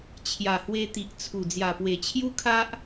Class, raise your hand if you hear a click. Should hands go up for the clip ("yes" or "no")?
no